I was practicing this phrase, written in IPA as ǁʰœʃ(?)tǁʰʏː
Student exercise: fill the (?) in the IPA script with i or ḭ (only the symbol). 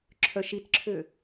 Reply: i